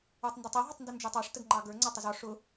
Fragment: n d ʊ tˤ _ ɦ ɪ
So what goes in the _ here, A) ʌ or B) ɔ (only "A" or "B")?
A